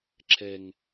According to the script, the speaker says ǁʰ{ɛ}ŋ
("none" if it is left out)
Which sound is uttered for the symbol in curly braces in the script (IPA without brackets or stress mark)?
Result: ɛ